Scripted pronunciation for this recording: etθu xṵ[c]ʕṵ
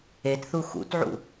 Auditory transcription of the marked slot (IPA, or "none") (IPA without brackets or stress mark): t